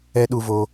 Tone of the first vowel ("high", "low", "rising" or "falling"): high